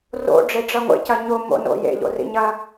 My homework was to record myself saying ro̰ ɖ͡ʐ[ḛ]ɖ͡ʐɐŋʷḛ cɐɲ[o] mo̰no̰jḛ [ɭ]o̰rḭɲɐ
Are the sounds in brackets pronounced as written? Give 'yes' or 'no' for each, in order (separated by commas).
no, yes, no